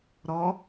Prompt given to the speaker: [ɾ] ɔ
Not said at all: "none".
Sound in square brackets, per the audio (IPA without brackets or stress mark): ɾ